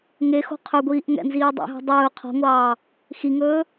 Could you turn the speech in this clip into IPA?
ŋ e x o̤ qʰ ɵ ɡʷ iː ʔ ŋ ɛ̰ n z iː dˤ ḛ ɦ o̤ dˤ ɵː qʰ ɔ̤ ŋʷ ɑː | x i ŋ ɵː

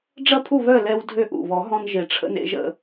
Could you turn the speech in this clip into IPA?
ɖ͡ʐ ɐ˥˨ pʰ u˥˨ β œ˥˨ l ɛ˧ w dʱ ø˧ ʔ ṵ˨˩ β ɔ˨˩˦ ɦ ɔ̃˧ n ʒ e˨˩ ʈ͡ʂʰ ə̰˧ n ḛ˧ ʒ ə̰˧

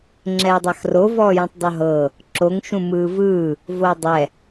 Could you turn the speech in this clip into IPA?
ŋ͡ǁ ɛː dˤ a x r o v ɔː j ũ tˤ dˤ u ɦ ɤː | ǁ o ŋ ʃ ũ m ɯː v ɯː | v o dˤ ɛ

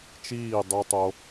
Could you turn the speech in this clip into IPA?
t͡ʃ iː˦˨ dˤ u˧ tˤ o˧

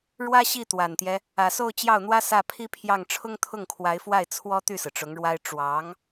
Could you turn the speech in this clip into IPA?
ɻ w ä˥ ɕ i˥˩ t̪ w a˨˩ n t̪ j ɛ˦ | ä˨˩ s o˥˧ ʊ̯ t͡ɕ j ɑ˥˩ ʊ̯ n̪ w ä˥ s ä˥˩ pʰ i˥ pʰ j ɑ˥˩ ŋ ʈ͡ʂʰ ʊ˥ ŋ t̪ʰ ʊ˥˩ ŋ kʰ w a˧˥ ɪ̯ f w a˥˩ ɪ̯ t͡sʰ w ɔ˥ t̪ y˥˩ s ɹ̩˩ ʈ͡ʂ ʊ˧˥ ŋ ɻ w a˥ ɪ̯ ʈ͡ʂ w ɑ˧˥ ŋ

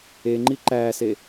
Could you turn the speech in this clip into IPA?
e ŋ͡ǃ i ǃ æː s e

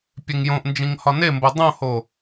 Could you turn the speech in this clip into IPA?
pʲ e ŋ j õ ʔ n d͡ʒ ĩ ŋ h ɒ n e m b o dˤ õ h o

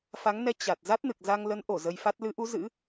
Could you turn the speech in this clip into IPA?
f a˨˦ ŋ n ɛ˨˦ t͡ɕ a˨˩ t̚ z a˦˥ t̚ n ɨ˨˩ k̚ z a˧ ŋ l ə˨˦ n ʔ o˧˩ z ə˧ j f a˦˥ t̚ l ɨ˨˦ ʔ u˨˦ z ɨ̰˧˥

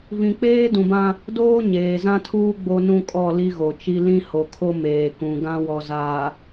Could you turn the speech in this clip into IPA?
v ĩ˨ k͡p eː˦ d ũ˨ b ã˦ | d oː˦ ɲ eː˨ z ã˦ tʰ uː˦ ɡ͡b o˦ n ũ˦ kʼ ɔ˦˨ l i˦ ɣ o˨ t͡ʃ i˦ l ĩ˦ h o˨ kʰ o˦ m eː˨ k ũ˨ ɡ ã˦ w ɔ˨ z aː˨

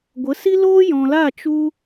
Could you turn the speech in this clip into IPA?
ɡʷ ə˨˦ s i˦ l oː˦ j ɔ̃˨ l a˦˨ t͡ʃ u˧

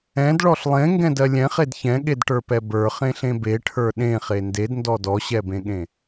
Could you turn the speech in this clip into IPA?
ɛ̃ d ɭ ɔ ɬ lˠ ẽ ŋ ɡ ɛ̃ d ɜ lʲ ɛ̃ χ e d ç ɛ̃ ɠ e d ʈ ə˞ p ɛ b ə˞ χ ẽ ɬ ẽ b e ʈʰ ə˞ ɗ ẽ χ e n d e d n d ɔ d ɔ ɕ ɛ b ẽ ɠ ẽ

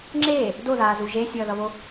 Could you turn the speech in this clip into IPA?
ŋ͡ǁ eː | d o ð aː z u ʒ e sʲ ʌː ð ʌ β o

